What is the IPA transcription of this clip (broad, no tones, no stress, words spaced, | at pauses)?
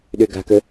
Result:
ɗøɡa̤kə